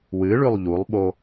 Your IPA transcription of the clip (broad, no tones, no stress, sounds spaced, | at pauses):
w ɨ ɭ ʉ lˠ ʎ u lˠ ɓ o